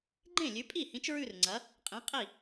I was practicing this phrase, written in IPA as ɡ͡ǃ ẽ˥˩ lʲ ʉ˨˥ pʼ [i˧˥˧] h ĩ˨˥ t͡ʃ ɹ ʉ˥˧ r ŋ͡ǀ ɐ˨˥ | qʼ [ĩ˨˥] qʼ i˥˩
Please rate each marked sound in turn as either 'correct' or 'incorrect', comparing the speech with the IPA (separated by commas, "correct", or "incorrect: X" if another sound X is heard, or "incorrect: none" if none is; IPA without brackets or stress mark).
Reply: incorrect: i˥˩, correct